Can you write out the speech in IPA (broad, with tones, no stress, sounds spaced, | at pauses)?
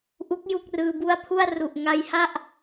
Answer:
ʔ u˦˥ k̚ j u˥˩ k̚ r ɯː˧ b u˥˩ a̯ pʰ u˥˩ a̯ r u˨˩ ʔ ŋ a˧ j h a˥˩ ʔ